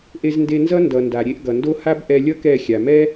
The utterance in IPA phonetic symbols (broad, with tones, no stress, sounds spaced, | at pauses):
ʔ e˧ z n d e˧ n z ʌ˦ n d ʌ˨ n d a˨ ɾʲ e˧ ʔ ɡ ʌ˨ n d o˦ h a˦ b ʔ ɛ˧ lʲ ʌ˦ k ɛ˦˨ xʲ a˨ m ɛ˦